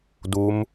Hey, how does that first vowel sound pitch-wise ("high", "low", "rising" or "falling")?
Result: rising